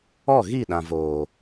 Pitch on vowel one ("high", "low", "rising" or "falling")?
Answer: falling